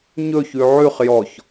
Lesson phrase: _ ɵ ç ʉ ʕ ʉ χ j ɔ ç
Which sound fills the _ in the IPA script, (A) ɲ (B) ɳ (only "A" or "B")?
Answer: A